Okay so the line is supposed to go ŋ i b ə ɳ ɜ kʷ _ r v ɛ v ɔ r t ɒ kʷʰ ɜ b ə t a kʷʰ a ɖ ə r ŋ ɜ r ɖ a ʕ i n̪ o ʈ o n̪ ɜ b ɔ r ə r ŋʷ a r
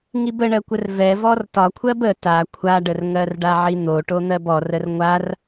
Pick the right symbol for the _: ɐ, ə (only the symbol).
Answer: ə